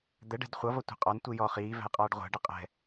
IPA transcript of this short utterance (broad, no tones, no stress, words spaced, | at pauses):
d̪ɛɖɛ̤d χʷʌvʌ tʷɛ̤qʼɒntʷi jɔ χiːvæ̤j qʼɑːɖʁʷæ̤ɖɪ qʼɛ̤